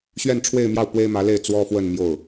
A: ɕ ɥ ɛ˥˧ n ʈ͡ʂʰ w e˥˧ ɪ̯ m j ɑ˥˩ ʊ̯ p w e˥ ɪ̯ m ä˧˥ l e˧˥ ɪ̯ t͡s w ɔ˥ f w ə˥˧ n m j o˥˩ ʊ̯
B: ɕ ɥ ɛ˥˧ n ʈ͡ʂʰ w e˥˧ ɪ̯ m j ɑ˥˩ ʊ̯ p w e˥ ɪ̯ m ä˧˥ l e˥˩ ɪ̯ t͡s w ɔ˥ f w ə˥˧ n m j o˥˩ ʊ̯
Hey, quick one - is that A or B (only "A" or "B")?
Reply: B